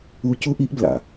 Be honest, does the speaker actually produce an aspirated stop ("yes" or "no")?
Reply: no